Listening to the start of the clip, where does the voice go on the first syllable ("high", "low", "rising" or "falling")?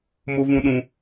high